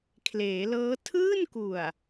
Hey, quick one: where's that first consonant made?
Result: velum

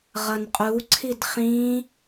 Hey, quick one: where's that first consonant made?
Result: uvula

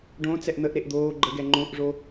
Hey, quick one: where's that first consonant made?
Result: retroflex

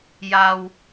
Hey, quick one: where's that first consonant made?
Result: palate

